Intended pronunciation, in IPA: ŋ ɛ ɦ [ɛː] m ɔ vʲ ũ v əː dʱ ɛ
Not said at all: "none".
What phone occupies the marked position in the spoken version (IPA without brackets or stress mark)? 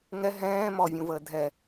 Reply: ɛ̃ː